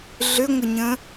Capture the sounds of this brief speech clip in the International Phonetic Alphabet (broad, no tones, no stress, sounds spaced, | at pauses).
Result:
ɮ ʏ ŋʷ ə ɲ ə̃